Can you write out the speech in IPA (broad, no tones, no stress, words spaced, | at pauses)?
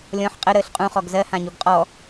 lʲɔ̃ħ qʼə ɾəːɬqʼũχɔɡ zɜhãɲuɡ qʼɔ